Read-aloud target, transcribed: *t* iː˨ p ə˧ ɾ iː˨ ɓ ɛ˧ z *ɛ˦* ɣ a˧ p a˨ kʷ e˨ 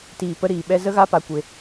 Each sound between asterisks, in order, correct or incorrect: correct, incorrect: ə˦

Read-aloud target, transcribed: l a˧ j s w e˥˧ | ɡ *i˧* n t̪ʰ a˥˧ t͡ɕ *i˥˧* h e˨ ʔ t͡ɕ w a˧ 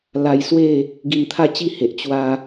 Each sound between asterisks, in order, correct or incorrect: correct, correct

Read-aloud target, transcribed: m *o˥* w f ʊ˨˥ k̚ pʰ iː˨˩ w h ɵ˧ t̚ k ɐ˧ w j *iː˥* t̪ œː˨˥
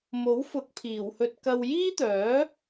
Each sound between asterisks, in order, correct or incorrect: incorrect: o˨˥, correct

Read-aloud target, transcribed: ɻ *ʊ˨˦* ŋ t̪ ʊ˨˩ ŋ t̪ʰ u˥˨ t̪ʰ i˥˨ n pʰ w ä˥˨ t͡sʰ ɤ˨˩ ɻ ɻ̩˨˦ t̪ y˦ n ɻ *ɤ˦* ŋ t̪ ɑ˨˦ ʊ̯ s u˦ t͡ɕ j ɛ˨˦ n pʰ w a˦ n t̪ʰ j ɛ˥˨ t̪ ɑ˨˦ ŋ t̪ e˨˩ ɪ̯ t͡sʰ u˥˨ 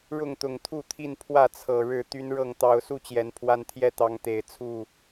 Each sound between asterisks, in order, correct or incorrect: incorrect: ʊ˥˨, incorrect: ɤ˥˨

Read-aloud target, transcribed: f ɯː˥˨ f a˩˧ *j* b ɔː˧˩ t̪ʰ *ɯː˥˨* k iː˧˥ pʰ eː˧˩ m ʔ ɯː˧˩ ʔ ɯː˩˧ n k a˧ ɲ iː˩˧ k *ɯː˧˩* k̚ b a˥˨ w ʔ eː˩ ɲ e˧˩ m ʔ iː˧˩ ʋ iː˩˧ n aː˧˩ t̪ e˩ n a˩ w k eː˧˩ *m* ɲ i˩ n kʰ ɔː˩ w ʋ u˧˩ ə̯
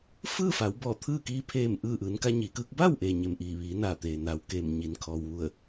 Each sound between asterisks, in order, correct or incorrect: incorrect: w, correct, incorrect: ɯː˧˥, correct

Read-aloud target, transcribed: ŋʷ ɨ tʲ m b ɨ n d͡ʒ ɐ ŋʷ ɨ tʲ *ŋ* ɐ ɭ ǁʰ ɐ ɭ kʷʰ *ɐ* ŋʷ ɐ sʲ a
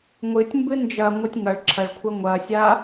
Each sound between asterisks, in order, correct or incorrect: correct, correct

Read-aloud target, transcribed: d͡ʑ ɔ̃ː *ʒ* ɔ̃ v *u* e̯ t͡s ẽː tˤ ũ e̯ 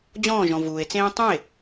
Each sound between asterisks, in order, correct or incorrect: correct, incorrect: uː

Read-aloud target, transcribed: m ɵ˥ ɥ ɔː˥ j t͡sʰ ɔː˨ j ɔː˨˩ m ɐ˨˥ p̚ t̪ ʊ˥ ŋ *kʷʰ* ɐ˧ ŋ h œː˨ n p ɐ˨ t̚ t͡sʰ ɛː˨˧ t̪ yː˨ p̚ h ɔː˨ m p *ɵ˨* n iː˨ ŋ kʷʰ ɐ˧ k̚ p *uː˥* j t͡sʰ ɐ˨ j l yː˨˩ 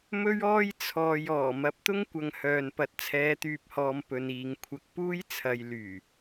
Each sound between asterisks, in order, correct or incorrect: incorrect: kʷ, correct, correct

